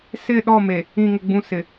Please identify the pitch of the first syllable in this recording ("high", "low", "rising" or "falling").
falling